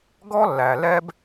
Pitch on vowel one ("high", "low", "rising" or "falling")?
high